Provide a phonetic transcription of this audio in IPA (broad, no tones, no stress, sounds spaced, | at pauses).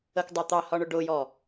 ə k dˤ æ t̪ ɑ h ɒ ɳ ʊ ɖ ʊ j ɔ